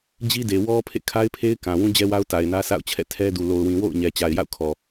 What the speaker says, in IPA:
d͡ʑ i˦ d e˨ w ɔ˦ pʰ ḛ˦˨ kʰ a˦ ɪ̯ pʰ e˦ ɪ̯ k ã˨ w ũ˦ d͡ʑ ɛ˦ w a˦ ʊ̯ t a˨ ɪ̯ n ä˦ s a̰˦˨ ʊ̯ t͡ɕʰ ɛ̰˦˨ tʰ ɛ˦ d u˨ l o˨ ʊ̯ w ĩ˨ w o̰˦˨ ʊ̯ ɲ ɛ˨ t͡ɕ a˨ ɪ̯ j a̰˦˨ ʊ̯ kʰ ɔ˨

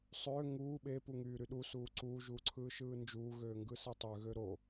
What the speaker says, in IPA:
sˤ øː ŋ uː ɓ e p u ŋ yː ɾ y ɗ u s uː ǀ uː ʒ uː ǀʰ ɯː ʃ ɯː n d͡ʒ uː ɣ øː ŋ ɡ ɯ s e tˤ ø ɣ ø ɾ o

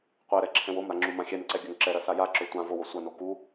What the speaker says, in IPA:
qʷ ɛ ɾ ɛ ǁʰ ɛ̃ w o m ɾ a ŋ͡ǁ u m ã xʲ ɛ n ǀ ɛ ɡʲ ɵ ŋ ǁ ɛ ɾ ɐ s a j a ǁ ɵ tʷ ã v o w o sʷ ɐ n o k u

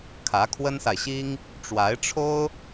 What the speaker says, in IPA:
kʰ ä˧˥ kʰ w ə˥ n s a˨ ɪ̯ ɕ i˥ ŋ | ʈ͡ʂ w a˧˥ ɪ̯ ʈ͡ʂʰ o˥ ʊ̯

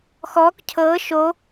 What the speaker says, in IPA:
x ɔː k cʰ ɤː ʃ o

